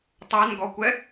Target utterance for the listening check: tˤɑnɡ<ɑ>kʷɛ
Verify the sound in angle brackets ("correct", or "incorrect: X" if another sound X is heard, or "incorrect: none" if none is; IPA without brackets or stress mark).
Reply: incorrect: ɔ